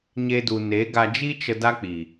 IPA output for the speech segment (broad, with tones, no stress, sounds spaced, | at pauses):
ɲ e˦ d u˧ n e˨˦ ɡ a˧ d͡ʒ i˦ t͡ʃ ə˧ d a˦ k͡p i˨